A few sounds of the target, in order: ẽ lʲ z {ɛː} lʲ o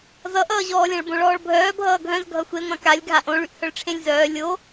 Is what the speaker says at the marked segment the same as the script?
no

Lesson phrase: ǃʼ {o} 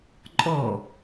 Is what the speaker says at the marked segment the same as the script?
no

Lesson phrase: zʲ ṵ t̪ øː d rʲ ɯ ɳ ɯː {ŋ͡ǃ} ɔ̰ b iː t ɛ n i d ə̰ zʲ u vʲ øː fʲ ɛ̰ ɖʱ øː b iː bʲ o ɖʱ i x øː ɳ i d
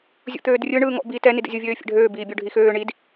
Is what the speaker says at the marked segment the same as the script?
no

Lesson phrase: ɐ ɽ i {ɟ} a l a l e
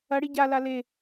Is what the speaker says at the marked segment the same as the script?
yes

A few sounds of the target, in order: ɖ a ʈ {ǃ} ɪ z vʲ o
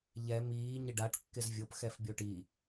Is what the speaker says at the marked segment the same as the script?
no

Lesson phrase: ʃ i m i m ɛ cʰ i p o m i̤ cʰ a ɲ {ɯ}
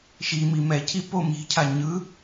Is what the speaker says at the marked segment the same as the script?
yes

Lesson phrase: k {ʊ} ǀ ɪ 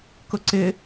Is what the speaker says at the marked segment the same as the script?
yes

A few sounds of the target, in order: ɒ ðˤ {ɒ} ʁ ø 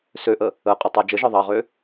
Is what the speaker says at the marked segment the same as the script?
no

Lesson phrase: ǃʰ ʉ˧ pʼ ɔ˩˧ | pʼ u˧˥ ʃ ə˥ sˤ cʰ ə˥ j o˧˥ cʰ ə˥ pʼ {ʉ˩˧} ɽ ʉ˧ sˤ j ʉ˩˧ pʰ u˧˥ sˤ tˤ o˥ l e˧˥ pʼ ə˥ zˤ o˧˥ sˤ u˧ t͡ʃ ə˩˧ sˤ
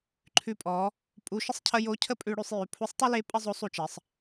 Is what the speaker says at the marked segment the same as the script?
no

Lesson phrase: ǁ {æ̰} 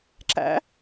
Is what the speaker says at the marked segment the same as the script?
yes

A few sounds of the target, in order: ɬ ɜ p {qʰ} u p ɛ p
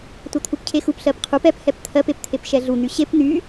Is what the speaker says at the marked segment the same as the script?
yes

